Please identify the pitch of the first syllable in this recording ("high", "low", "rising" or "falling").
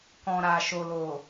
low